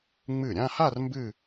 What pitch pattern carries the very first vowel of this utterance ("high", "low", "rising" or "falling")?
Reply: falling